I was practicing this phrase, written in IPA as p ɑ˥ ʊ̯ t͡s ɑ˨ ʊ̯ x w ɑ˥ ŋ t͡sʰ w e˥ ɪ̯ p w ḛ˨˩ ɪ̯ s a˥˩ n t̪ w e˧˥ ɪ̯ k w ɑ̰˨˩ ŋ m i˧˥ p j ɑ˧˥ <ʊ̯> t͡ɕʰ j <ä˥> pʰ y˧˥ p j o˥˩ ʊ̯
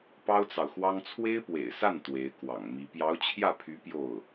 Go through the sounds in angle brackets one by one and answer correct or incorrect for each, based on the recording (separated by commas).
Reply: correct, incorrect